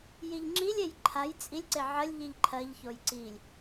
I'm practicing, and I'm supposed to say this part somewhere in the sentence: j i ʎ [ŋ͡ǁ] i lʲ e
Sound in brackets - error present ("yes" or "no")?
no